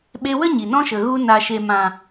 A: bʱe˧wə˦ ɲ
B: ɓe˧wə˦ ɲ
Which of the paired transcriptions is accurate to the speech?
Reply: B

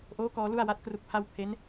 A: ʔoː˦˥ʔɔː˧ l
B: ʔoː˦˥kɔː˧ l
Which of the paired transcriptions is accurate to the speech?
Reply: B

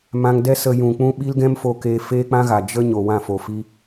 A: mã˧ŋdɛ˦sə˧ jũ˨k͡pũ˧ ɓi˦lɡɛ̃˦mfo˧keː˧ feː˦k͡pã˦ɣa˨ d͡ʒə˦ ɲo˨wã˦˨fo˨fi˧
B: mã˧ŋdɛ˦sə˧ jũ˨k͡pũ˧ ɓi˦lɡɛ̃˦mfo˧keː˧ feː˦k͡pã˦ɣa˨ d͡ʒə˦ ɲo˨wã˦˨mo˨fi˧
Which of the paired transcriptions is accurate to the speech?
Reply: A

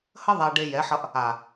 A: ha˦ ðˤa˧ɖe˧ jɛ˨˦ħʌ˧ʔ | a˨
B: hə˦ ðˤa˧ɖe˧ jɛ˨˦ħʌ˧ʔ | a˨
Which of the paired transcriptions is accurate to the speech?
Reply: B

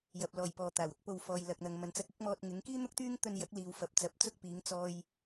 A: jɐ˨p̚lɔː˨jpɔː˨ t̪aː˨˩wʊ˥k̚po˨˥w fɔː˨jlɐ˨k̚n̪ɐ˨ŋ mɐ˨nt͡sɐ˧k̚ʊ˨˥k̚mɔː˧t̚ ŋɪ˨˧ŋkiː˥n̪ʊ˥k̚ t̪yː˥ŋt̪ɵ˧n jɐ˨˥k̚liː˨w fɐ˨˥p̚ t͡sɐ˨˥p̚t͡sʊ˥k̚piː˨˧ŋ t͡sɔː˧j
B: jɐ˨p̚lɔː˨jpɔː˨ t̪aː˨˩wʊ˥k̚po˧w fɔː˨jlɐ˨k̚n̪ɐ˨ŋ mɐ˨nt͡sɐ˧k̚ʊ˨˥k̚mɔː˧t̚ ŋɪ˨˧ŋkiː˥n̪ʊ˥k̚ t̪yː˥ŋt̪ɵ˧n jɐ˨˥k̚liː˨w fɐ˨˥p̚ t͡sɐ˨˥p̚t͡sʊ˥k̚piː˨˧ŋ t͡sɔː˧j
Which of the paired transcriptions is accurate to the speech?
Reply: B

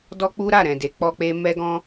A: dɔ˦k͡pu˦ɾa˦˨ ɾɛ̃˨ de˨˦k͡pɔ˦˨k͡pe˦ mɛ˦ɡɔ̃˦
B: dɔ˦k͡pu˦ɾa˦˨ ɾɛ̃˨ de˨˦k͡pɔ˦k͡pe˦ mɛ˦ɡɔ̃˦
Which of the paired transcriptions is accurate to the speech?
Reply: B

